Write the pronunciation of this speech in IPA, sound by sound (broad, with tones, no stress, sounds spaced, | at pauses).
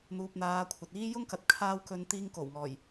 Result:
n̪ uː˨ p̚ n̪ aː˨˧ kʷʰ ɐ˨ t̚ iː˥ j ʊ˥ ŋ k ɐ˨ t̚ kʰ aː˧ w k ɵ˨˧ n t̪ iː˧ ŋ k o˨˩ w ŋ ɔː˨˩ j